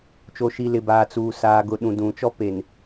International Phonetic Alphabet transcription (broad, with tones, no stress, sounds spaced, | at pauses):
t͡ʃ o˨ ʃ i˨ l ɪ˨ b aː˨ t͡s uː˨ s aː˨ ɡ ʊ˨ ɗ ũ˨ d ũ˨ t͡ʃ ɔ˦ p e˨ n